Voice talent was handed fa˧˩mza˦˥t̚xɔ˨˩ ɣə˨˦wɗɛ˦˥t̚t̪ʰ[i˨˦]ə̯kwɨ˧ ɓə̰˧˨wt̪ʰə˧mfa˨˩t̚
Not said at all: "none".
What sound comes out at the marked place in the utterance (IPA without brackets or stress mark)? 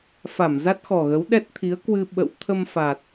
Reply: i˨˦